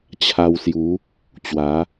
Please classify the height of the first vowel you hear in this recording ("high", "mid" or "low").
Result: low